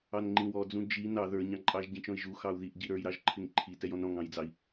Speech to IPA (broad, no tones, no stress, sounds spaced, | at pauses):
ɑ n ŋ͡ǃ ĩ w ɔ d͡z ũ d͡ʒ i n ɑ ð ə˞ ɲ ɑ̃ ǃʼ ɑ ʒ ɟ ĩ t͡ʃ ɔ̃ i̯ ʒ u x ɑ u̯ ð i ʔ ɟ i ɾ ə˞ j ɾ ɑ ʒ ǃʰ ɪ ŋ ǃʰ i t ɛ j ɔ̃ n ɾ ɔ̃ ŋ ɑ̃ j d͡z ɑ i̯